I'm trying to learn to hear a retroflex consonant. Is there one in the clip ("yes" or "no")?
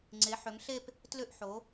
no